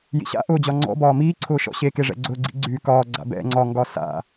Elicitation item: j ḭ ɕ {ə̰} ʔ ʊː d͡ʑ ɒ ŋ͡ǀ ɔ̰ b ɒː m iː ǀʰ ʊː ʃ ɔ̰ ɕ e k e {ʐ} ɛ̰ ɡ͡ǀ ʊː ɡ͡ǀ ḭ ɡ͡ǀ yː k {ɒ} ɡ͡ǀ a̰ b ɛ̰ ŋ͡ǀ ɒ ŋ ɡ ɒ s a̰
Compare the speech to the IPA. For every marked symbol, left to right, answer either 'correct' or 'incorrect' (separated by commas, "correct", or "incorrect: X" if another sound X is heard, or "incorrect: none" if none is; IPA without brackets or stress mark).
incorrect: a̰, correct, incorrect: ɒː